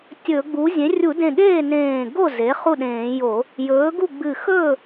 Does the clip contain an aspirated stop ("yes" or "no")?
no